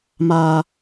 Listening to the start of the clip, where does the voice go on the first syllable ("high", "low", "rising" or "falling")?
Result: high